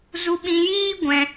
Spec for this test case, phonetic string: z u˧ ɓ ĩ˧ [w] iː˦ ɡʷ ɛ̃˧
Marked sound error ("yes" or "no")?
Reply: yes